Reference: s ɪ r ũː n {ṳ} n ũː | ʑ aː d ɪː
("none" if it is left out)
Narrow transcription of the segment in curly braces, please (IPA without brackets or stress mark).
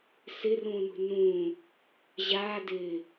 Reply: ṳ